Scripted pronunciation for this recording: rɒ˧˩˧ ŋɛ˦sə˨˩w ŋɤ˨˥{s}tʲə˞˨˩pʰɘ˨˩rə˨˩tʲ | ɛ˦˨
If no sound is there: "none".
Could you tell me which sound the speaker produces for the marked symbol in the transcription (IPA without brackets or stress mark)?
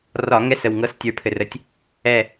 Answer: s